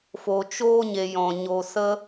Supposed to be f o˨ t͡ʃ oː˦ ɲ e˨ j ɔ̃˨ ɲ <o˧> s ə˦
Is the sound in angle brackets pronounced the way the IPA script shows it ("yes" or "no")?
yes